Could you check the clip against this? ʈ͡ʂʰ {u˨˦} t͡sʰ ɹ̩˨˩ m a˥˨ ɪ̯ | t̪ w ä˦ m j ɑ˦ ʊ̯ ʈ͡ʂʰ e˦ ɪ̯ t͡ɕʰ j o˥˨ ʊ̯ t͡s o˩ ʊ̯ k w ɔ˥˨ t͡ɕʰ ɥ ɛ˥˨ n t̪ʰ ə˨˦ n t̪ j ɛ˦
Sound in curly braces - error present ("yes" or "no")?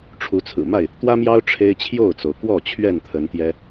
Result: no